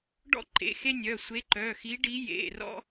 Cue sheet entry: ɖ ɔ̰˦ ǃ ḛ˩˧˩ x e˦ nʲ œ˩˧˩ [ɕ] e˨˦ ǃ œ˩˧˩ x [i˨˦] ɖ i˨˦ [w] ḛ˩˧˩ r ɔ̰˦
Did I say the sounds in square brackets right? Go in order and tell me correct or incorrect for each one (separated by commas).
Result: incorrect, correct, incorrect